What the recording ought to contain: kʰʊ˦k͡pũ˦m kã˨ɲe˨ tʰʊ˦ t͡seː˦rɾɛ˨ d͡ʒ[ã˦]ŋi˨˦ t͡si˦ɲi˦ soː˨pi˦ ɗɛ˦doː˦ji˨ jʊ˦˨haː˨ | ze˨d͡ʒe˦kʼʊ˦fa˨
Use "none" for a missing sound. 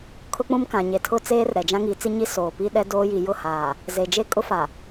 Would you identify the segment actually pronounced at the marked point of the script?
ã˦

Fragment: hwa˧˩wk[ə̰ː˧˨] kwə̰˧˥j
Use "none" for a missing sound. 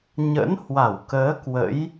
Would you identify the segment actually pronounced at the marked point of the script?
əː˨˦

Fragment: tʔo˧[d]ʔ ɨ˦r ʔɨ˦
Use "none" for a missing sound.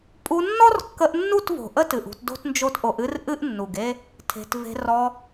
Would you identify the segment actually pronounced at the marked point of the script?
none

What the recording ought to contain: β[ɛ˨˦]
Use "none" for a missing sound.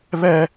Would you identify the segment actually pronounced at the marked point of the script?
ɛ˦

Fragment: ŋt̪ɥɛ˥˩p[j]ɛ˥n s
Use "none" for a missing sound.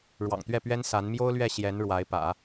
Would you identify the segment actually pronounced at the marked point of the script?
ɥ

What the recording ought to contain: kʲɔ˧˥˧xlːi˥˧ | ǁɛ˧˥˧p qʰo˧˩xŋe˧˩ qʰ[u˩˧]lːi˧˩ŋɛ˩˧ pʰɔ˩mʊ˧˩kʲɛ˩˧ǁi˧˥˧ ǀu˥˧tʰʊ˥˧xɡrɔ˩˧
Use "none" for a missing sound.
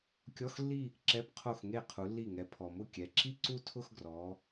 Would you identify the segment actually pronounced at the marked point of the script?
u˩˧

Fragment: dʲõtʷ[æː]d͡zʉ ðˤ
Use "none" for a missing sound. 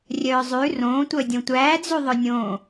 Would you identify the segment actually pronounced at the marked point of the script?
æː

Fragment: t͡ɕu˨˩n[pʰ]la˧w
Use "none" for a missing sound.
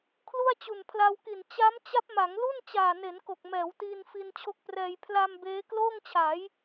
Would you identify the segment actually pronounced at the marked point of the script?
pʰ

